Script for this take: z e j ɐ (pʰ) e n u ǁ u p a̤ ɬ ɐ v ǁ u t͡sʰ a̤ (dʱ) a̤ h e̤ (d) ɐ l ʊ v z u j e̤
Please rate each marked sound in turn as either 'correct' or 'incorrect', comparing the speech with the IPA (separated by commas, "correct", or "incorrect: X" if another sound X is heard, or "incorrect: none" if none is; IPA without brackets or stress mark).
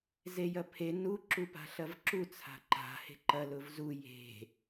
correct, incorrect: ǃ, incorrect: ǃ